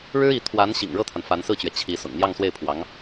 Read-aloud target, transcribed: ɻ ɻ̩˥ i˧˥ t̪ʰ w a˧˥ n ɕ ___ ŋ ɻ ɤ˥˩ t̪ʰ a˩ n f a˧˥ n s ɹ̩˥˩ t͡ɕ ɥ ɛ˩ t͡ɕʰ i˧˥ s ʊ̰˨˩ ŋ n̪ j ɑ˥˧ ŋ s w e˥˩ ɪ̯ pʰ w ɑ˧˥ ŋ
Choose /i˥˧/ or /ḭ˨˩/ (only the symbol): ḭ˨˩